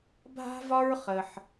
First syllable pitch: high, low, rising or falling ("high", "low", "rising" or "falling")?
high